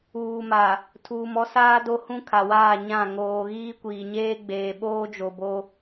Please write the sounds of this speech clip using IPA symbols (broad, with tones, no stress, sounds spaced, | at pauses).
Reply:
uː˨ m a˨ | tʰ uː˨ m ɔ˦ s aː˦ d o˦ h ũ˦ kʰ a˨ w aː˦˨ ɲ ã˦˨ ŋ oː˨ ɣ iː˦ kʷ iː˨ ɲ eː˦ ɡ͡b eː˨ ɓ oː˦ d͡ʒ o˨ b o˦